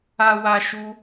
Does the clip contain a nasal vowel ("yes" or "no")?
no